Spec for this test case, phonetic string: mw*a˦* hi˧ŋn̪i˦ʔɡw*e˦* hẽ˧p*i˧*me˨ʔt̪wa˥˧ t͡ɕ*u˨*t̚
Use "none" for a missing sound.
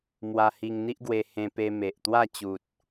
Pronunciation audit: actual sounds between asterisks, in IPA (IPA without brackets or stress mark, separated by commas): a˧, e˧, e˧, u˨